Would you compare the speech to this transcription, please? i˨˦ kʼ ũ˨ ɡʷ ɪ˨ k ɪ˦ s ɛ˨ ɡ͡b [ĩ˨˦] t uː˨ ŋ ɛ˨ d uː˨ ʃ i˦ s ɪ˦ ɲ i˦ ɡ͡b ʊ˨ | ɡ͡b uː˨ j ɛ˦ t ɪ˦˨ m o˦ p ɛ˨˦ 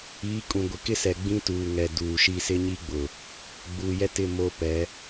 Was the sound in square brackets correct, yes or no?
no